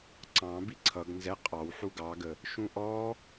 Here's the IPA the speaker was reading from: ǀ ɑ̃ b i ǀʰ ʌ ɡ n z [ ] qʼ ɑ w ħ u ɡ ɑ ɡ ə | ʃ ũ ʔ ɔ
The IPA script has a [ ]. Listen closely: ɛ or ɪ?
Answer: ɛ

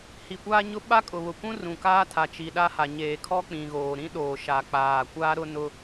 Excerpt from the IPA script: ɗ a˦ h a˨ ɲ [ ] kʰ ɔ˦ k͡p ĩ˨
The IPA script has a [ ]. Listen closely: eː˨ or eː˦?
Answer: eː˨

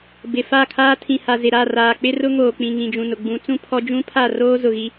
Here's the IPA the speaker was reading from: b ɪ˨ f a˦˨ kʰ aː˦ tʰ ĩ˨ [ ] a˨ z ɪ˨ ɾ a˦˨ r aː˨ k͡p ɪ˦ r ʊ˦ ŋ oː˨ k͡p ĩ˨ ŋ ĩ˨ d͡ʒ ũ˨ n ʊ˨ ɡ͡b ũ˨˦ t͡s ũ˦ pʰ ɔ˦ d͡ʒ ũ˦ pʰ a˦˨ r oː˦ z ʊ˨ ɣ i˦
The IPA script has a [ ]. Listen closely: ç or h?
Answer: h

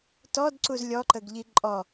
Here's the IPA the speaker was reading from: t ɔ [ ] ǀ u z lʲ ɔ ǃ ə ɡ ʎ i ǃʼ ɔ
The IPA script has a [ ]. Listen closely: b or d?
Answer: d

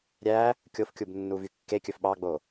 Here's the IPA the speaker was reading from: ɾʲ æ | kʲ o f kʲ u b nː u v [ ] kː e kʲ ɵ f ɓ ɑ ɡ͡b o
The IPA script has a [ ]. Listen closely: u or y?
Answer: y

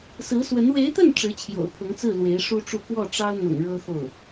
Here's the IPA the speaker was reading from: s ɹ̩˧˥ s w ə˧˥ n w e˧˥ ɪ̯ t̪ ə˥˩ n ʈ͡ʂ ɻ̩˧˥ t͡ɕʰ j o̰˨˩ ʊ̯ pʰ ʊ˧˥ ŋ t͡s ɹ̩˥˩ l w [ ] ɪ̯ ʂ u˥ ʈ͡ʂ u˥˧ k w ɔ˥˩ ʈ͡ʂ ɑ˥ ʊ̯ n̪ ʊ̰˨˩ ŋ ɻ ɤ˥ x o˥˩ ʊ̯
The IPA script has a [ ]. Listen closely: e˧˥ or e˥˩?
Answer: e˧˥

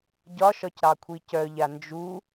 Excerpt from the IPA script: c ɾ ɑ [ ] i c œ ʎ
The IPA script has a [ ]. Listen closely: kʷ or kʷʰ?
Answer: kʷʰ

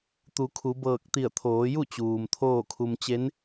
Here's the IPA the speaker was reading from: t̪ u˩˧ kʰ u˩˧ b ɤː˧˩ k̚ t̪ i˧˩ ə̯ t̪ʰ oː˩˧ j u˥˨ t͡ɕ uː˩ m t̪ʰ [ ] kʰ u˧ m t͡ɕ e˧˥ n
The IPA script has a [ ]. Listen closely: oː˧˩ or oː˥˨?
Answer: oː˥˨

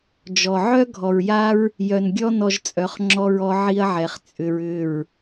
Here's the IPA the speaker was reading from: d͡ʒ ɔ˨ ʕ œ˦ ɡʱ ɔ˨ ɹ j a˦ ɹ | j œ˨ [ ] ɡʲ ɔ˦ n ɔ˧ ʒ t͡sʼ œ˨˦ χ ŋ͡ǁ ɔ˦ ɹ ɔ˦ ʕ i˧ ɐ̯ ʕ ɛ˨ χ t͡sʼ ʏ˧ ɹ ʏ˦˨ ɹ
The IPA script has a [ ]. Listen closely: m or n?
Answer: n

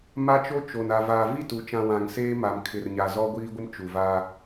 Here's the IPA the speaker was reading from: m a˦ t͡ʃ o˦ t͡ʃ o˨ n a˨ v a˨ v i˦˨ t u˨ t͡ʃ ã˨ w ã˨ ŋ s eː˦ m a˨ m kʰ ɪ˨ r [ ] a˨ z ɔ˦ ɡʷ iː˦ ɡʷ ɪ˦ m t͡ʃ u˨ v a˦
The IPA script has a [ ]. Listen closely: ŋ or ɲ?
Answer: ɲ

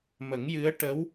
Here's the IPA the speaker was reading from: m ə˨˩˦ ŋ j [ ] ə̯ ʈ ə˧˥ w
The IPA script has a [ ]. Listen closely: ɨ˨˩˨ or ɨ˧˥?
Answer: ɨ˧˥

